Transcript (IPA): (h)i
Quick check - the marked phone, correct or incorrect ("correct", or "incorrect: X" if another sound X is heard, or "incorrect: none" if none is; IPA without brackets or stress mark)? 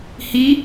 correct